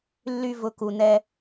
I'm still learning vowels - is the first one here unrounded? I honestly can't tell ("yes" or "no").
no